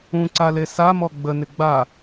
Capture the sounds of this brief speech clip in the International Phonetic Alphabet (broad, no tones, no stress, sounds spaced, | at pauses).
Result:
ũ ǀ a l e s a m ɔ ɡ͡b ə n ɪ ɡ͡b a